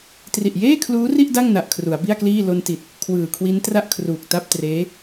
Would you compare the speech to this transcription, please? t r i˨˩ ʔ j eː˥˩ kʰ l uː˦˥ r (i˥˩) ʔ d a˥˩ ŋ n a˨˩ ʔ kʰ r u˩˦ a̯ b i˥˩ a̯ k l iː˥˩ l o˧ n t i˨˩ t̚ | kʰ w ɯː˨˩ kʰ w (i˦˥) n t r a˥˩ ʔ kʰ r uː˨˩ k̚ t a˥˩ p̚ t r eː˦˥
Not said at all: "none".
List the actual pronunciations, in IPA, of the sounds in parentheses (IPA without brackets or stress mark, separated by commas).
i˥˩, i˦˥